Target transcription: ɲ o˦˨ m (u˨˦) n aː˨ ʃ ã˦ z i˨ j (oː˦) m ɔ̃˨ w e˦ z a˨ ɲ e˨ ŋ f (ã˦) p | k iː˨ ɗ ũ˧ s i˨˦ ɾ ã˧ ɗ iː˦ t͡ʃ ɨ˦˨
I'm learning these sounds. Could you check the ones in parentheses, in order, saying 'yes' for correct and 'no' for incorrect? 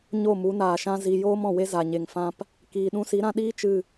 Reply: yes, yes, yes

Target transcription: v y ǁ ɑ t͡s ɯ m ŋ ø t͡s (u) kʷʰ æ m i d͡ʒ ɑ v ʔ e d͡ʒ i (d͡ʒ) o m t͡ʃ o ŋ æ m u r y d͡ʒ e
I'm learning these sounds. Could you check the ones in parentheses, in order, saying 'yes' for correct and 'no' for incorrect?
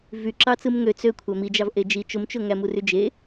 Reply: no, no

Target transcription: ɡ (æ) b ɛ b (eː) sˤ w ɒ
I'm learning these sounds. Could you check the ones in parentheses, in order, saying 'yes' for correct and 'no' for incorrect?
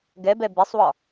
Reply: no, no

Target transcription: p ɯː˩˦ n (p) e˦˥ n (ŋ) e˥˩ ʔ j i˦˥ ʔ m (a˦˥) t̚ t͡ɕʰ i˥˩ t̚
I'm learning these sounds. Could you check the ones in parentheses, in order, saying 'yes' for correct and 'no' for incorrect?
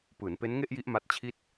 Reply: yes, yes, yes

